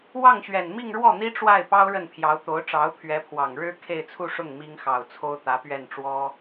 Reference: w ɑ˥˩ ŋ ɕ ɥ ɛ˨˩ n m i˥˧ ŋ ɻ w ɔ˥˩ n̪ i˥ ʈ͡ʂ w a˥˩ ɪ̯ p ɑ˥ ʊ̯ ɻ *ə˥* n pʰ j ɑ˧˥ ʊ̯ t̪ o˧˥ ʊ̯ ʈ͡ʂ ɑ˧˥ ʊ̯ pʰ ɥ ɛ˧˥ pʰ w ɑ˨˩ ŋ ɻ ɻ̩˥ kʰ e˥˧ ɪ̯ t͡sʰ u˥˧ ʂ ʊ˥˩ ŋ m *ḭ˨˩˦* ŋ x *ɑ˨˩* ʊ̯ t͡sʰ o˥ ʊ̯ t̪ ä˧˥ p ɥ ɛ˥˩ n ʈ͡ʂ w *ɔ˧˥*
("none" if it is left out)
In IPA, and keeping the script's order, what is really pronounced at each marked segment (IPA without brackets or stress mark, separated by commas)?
ə˥˩, i˥, ɑ˨˩, ɔ˥